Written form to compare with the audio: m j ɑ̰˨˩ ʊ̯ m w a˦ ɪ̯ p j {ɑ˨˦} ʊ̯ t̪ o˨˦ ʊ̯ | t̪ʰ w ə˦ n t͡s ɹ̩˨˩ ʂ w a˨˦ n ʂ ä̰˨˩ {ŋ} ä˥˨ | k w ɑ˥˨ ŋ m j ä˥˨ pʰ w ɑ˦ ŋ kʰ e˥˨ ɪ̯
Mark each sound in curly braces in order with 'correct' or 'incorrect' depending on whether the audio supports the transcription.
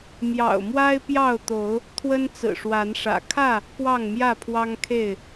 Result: incorrect, incorrect

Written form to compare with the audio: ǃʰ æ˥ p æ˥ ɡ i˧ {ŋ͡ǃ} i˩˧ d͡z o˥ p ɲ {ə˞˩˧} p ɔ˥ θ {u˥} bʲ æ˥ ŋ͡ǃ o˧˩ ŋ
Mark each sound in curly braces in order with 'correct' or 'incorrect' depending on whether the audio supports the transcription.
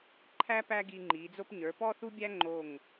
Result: correct, correct, correct

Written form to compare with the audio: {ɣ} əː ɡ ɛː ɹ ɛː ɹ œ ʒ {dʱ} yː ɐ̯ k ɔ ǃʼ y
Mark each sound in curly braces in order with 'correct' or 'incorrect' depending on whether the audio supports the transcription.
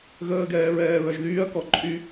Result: correct, incorrect

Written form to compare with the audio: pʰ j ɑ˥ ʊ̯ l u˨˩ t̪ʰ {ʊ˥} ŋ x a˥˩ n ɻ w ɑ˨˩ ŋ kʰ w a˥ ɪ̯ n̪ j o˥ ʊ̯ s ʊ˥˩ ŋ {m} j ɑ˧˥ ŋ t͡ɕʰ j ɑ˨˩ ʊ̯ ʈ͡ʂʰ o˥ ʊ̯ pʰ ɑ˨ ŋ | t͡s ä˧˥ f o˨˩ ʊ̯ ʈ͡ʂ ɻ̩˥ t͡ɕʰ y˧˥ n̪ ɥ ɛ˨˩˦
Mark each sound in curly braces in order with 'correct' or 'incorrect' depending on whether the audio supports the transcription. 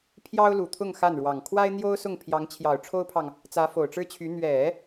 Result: incorrect, incorrect

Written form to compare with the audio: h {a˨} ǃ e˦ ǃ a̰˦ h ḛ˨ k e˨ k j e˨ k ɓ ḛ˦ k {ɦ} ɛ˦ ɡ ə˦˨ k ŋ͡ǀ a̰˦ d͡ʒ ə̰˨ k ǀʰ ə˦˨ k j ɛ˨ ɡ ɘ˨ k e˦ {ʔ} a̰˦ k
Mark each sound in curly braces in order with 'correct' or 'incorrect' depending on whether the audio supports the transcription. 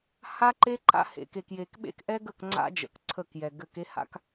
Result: incorrect, incorrect, incorrect

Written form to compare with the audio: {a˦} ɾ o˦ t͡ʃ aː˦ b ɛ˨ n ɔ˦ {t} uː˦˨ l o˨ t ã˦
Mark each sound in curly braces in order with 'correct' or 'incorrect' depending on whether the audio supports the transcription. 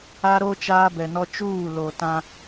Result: correct, incorrect

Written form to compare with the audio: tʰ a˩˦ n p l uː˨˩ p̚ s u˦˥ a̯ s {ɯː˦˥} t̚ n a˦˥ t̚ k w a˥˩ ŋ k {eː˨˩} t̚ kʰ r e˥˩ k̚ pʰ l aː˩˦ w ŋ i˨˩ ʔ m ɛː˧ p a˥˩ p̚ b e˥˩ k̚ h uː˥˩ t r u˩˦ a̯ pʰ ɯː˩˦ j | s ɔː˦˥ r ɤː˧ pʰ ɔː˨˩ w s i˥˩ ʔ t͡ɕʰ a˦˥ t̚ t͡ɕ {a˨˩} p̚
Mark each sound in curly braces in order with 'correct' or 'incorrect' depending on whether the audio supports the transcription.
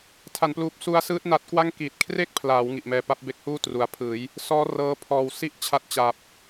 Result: correct, incorrect, correct

